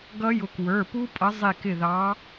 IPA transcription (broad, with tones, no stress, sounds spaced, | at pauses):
ɡ ʌ˦˥ j ʊ˨˦ k w ə˞˩˧˩ p u˦˥ pʼ ʌ˨˦ zˤ i˧˩ k ɪ˧˩ ð ɑ˨˦